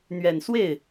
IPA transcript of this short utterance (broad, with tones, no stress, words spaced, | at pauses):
n̪ɥɛ˨˩nswe˥˩ɪ̯